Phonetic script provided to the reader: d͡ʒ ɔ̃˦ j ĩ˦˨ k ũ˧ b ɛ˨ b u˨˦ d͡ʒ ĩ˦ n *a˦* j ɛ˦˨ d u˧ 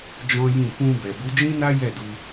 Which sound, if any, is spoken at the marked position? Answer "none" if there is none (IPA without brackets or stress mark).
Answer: a˦